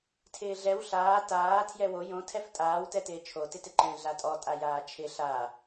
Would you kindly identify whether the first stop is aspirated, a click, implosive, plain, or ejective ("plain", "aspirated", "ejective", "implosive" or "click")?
aspirated